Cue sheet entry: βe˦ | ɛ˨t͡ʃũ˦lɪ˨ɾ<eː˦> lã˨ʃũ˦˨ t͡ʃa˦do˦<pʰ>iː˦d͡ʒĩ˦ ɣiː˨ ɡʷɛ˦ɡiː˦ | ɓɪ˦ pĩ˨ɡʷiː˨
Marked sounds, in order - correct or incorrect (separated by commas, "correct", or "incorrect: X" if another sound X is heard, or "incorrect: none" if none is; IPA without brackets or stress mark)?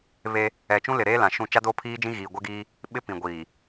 correct, correct